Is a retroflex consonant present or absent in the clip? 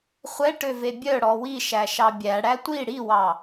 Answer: present